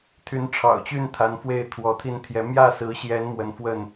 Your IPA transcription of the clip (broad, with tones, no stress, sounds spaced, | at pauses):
t̪ʰ y˨˦ n ʈ͡ʂʰ ɑ̰˨˩ ʊ̯ t͡ɕ y˥˨ n t̪ʰ a˨˦ n f w e˥˨ ɪ̯ t̪ʰ w ɔ˨˦ t̪ʰ i˦ n t̪ʰ j ɛ˨˦ m j ä˥˨ s ɹ̩˨˦ ɕ j ɛ˨˦ n m w ə˨˦ n f w ə˥˨ n